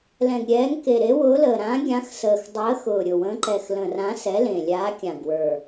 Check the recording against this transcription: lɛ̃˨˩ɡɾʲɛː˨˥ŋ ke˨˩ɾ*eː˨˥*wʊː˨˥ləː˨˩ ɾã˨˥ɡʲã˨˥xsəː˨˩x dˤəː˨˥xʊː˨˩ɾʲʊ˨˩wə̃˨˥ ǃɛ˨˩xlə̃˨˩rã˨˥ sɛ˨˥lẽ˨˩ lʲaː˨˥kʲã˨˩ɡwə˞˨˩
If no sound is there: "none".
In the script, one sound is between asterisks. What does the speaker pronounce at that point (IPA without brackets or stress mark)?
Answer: e˨˥